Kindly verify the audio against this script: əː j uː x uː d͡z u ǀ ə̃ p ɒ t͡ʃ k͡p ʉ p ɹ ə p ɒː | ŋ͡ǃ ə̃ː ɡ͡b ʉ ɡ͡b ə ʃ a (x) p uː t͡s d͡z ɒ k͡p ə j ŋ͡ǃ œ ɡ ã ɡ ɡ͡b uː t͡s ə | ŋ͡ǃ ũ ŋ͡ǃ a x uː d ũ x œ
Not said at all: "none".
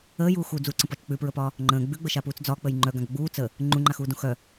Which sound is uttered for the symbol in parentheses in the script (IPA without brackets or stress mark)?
none